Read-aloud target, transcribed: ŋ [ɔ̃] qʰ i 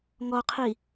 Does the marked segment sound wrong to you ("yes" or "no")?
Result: yes